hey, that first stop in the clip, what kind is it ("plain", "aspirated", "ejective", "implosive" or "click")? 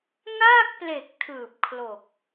plain